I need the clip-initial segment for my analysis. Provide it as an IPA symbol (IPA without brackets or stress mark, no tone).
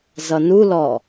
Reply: z